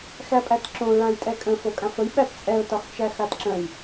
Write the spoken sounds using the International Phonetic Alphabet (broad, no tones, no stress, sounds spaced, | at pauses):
x æ pʼ æ t ǁ õ ɹ ã j tʼ ɛ kʼ ə̃ f o kʼ ã f ə j ɓ æ t t͡sʼ ɛ ʊ̯ t ɒ x t͡ʃ æ x a t ǁ ə̃ j